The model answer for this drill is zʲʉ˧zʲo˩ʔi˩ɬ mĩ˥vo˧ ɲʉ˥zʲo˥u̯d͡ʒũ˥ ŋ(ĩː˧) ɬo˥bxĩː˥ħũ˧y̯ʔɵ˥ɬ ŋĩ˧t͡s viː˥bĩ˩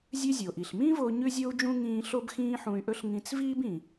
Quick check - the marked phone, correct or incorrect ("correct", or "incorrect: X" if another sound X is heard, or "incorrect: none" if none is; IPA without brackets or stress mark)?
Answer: correct